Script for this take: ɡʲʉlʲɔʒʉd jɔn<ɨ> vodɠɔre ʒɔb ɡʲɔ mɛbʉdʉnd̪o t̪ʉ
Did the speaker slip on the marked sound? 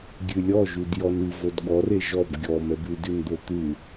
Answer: no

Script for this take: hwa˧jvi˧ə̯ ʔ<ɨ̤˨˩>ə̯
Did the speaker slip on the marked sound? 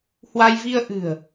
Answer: no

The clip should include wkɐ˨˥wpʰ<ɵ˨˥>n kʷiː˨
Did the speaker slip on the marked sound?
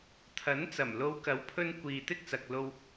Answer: yes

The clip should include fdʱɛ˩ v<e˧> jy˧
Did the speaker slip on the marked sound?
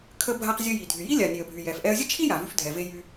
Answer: no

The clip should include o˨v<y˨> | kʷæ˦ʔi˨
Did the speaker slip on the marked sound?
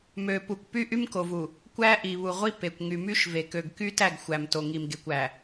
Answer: yes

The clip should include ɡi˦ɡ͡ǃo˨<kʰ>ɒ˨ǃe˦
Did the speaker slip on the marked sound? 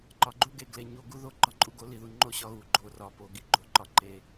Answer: yes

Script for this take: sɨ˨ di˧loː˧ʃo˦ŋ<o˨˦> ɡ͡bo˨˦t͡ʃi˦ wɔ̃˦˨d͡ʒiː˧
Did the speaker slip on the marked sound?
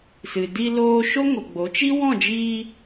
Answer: yes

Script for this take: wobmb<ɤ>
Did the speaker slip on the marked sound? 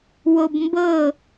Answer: no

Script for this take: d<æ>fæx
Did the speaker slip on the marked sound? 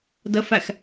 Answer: yes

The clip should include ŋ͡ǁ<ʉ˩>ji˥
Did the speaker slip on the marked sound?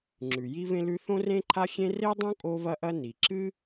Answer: no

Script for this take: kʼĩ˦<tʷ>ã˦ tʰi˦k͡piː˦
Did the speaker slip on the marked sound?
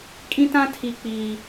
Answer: yes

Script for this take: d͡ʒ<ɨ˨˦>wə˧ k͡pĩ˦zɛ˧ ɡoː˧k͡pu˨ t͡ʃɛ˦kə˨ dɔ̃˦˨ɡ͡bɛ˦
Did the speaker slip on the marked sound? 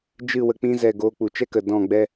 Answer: yes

